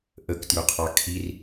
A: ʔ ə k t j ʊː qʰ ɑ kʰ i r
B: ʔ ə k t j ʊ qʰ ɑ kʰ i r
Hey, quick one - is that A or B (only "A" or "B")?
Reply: B